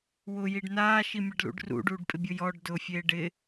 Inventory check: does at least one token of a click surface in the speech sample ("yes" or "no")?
no